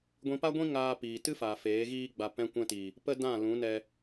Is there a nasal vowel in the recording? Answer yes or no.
yes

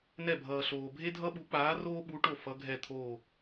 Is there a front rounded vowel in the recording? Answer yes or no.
no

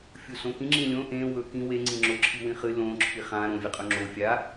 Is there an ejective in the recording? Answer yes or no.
yes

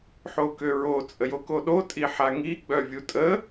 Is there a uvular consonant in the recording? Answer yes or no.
no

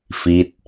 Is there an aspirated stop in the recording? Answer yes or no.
no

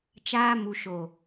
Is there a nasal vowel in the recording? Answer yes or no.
no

